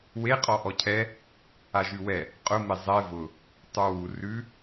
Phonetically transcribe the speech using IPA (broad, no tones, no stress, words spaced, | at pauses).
we qʼɔʔɔcʰɛ | aʒʉwɛ | qʼʊ mezˤɛ vʊ | tˤə˞wu rʉ